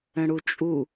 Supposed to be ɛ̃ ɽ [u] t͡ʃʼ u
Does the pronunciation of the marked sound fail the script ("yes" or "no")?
no